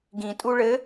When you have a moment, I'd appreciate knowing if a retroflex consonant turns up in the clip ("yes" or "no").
yes